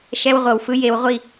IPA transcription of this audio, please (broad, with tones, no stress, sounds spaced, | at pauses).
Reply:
ʃ ɛ˦ w ʁʷ ɤ˨ w f ɯ˦ j e˨˦ w ʁʷ i˦˨